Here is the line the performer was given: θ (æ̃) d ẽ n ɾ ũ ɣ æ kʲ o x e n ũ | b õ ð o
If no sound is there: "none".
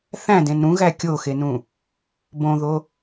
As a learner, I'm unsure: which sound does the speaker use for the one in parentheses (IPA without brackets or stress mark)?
æ̃